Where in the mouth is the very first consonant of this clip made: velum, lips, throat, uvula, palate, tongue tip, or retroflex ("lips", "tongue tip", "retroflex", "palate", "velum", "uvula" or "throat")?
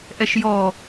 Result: throat